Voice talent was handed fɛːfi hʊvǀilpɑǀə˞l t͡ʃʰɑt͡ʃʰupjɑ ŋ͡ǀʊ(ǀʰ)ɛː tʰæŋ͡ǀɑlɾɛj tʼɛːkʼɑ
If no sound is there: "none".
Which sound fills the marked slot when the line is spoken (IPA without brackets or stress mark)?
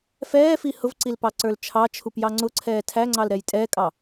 ǀʰ